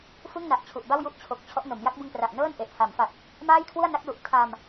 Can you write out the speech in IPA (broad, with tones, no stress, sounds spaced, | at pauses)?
f ɯ˥˩ ŋ n a˨˩ ʔ t͡ɕʰ u˨˩ ʔ b a˥˩ w j u˥˩ ʔ t͡ɕʰ o˨˩ k̚ t͡ɕʰ ɔ˦˥ ʔ n o˩˦ m j a˦˥ k̚ b ɯ˧ ŋ p r a˨˩ ʔ n ɤː˥˩ n ʔ e˨˩ ʔ h a˩˦ m f a˨˩ p̚ | m aː˥˩ j kʰ w u˥˩ a̯ n a˦˥ k̚ l u˨˩ ʔ tʰ a˧ m